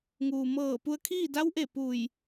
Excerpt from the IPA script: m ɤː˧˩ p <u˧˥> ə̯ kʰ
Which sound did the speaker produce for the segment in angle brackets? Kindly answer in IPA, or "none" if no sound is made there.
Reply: u˧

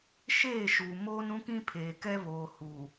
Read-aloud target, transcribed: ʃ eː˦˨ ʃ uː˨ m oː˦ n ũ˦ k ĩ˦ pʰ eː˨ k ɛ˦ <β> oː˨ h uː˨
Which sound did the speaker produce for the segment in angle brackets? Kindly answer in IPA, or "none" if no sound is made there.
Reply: β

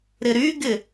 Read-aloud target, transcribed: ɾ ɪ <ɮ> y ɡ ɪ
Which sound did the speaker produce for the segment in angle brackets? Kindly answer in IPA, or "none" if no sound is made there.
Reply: ɾ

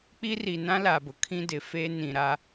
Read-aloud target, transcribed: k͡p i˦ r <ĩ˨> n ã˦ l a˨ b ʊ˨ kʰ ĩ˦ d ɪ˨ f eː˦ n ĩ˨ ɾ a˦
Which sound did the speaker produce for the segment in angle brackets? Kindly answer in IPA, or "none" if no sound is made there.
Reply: i˨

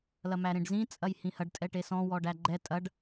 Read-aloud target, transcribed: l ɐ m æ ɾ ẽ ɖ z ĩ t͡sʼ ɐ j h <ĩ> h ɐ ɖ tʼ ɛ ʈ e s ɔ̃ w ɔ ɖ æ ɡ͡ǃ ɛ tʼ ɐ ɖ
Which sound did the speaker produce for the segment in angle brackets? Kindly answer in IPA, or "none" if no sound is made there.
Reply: ĩ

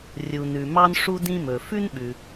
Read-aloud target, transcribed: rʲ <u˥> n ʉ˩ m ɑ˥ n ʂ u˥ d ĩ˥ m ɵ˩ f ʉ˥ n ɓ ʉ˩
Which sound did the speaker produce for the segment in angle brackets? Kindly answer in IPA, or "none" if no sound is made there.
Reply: u˩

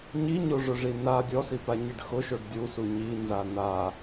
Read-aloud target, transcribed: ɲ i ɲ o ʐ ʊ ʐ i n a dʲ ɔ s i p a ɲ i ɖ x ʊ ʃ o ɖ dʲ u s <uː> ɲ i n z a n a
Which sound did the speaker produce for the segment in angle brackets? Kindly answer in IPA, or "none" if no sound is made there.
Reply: u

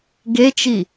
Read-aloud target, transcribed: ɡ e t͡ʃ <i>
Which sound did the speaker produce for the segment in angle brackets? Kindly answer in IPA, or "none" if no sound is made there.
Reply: i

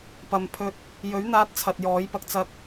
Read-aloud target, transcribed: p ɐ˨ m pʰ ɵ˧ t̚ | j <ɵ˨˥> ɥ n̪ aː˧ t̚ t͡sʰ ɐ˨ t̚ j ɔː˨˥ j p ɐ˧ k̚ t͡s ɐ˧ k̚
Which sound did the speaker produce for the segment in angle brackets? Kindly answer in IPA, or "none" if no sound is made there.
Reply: ɵ˨˥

